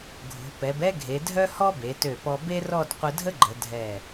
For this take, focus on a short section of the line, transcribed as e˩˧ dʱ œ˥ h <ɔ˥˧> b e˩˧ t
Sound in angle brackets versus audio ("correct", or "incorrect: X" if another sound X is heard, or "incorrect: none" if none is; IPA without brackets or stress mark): incorrect: ɔ˥